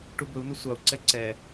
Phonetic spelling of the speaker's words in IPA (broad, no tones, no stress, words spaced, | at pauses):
ʈubɵu̯nɵ sʷɑu̯ǀɛ ǀɛ